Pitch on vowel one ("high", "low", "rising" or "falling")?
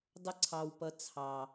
high